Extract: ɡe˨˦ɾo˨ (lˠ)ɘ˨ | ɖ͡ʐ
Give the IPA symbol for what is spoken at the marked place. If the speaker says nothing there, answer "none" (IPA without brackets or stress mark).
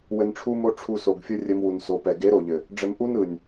ʎ